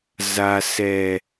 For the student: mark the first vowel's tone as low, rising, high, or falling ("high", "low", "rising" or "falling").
low